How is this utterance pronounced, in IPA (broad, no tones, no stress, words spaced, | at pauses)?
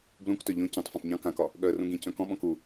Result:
blũktœ ʎõ cõtˤ fœ̃tˤɲɔ̃ kãkɒ | ɠœə̯rũɡĩ cœ̃kɔ̃ɓɔ̃k u